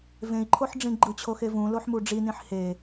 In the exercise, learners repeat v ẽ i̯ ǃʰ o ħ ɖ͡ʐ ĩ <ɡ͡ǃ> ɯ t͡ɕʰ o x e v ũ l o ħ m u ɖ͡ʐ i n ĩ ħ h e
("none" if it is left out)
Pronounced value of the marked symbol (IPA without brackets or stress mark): ɡ͡ǃ